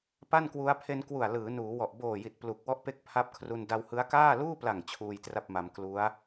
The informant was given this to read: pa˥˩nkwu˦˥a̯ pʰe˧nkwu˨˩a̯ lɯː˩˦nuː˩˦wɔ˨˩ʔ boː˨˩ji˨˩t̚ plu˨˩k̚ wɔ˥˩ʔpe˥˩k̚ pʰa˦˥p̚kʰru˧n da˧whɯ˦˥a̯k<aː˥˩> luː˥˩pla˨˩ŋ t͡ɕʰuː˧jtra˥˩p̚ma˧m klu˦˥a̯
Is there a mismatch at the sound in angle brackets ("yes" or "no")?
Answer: no